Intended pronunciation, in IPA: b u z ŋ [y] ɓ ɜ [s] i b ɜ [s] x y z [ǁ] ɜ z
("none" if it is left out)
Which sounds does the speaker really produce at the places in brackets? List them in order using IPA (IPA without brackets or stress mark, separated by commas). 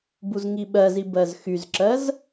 i, z, z, ǁ